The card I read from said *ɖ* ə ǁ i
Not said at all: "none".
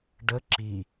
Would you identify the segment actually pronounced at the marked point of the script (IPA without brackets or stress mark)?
ɖ